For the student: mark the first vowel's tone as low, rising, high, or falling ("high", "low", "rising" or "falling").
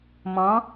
rising